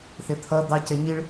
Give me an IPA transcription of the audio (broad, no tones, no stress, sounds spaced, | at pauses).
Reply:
θ ɪ t̪ʰ ʌ d̪ ɑ c ɛ ɲ i ɭ